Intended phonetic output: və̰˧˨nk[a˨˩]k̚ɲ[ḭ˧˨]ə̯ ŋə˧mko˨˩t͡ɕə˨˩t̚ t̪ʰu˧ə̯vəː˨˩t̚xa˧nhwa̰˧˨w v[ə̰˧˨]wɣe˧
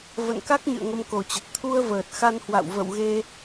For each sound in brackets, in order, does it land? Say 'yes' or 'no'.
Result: no, no, yes

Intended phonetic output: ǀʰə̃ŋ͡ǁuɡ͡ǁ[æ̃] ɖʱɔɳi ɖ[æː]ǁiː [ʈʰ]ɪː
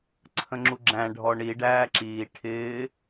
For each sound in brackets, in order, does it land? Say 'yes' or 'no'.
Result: yes, yes, yes

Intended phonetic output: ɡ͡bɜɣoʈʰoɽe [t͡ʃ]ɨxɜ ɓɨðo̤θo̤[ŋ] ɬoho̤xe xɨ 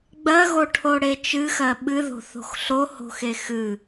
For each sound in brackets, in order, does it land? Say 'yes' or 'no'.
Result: yes, no

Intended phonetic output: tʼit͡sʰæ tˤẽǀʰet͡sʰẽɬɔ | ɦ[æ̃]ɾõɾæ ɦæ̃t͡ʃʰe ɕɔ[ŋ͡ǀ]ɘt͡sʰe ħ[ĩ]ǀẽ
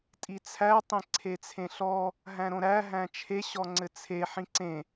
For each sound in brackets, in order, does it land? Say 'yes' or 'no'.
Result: yes, yes, yes

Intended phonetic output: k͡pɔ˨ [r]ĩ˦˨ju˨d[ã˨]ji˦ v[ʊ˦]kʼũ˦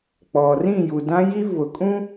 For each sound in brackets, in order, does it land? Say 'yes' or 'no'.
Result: yes, no, no

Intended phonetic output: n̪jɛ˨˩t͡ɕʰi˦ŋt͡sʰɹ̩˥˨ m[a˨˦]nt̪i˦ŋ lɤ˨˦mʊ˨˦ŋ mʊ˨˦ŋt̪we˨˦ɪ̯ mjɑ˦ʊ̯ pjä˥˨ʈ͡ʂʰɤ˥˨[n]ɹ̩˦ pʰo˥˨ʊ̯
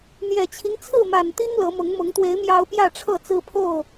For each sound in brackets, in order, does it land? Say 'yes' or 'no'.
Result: no, no

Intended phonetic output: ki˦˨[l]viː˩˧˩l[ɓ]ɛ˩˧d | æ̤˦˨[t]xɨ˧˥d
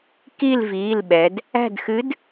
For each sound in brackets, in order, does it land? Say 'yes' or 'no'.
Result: yes, yes, no

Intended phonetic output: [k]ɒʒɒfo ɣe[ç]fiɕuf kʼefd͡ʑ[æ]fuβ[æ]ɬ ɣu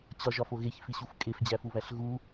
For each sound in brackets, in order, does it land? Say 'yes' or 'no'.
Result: no, yes, yes, yes

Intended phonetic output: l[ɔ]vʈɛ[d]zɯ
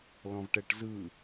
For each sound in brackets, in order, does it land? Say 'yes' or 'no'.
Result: no, no

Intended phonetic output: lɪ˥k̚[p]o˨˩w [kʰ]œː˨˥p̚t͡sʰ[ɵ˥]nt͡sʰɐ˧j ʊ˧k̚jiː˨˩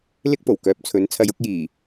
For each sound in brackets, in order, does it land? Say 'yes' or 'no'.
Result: yes, no, no

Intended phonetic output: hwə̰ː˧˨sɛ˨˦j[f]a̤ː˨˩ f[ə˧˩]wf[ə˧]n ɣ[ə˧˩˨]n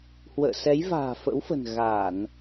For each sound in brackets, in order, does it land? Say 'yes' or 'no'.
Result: no, no, no, no

